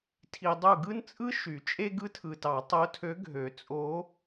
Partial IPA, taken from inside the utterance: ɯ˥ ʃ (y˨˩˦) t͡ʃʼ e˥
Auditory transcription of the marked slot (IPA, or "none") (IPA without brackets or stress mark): y˨˩˦